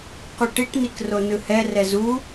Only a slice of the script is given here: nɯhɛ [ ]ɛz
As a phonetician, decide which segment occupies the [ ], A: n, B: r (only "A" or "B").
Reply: B